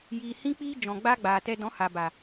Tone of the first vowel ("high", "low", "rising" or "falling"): low